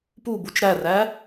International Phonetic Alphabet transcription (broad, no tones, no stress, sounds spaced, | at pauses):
p u b u t͡ʃ ɾ æ r æ